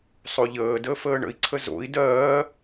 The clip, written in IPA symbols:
sˤoʎəːdəː fəːɳə̰i̯ǀʰə zo̰i̯ dɜː

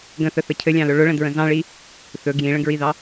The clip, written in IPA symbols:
ɡə̃θəθə cʰɘlʲɑ̃lɵ ɭʊɭə̃dɹə̃ zɑ̃ɭi | θɵ ɡjĩɭə̃ɡɹiðɑ

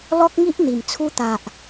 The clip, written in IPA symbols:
lɔ˦k̚ŋi˦ʔn̪i˨˩m t͡sʰu˧t̪a˨ʔ

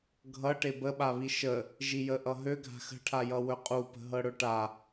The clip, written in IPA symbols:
ɡʱʌ ʈebəɓaβi ʃə | ʒijəʔʌɦø ɡʱa̤xə̤ʈʰajʌ wɵqʼupə̤ ɦɤɽɵʈa

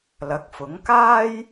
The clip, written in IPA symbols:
lɐ˨˥k̚fʊ˨˥ŋ kaː˥j

